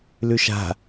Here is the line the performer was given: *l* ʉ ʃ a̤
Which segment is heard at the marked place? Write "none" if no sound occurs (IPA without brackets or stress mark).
l